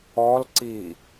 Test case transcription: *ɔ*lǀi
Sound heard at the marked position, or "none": ɔ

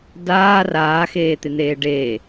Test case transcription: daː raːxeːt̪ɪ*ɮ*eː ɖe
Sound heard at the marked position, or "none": n̪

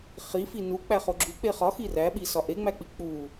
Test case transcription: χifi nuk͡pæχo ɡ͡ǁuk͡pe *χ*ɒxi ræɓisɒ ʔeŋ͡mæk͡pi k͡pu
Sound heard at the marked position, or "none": χ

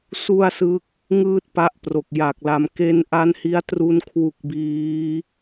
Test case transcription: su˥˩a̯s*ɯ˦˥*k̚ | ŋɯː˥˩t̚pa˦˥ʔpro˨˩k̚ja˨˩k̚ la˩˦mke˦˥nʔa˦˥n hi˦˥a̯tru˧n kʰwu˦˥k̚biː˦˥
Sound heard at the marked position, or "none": ɯ˦˥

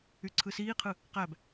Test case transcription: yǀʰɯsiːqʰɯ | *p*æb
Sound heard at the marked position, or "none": q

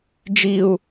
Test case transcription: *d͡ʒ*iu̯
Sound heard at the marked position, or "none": d͡ʒ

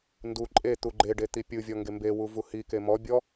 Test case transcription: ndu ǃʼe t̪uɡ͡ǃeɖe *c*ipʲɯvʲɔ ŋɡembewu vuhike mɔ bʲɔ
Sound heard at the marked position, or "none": t̪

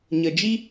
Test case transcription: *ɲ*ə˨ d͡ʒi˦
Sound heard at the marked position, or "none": ɲ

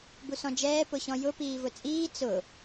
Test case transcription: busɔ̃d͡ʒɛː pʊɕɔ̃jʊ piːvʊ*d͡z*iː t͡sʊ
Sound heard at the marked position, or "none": t͡sʼ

